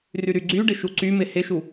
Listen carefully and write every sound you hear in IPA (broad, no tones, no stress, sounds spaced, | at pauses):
r y ɾ y ɡ͡ǀ y ɖ ɪ ʃ u ǀ y m ɪ h ɪ ʃ u